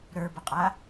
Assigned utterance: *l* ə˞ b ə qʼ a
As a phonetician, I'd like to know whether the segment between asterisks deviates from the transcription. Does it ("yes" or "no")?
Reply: yes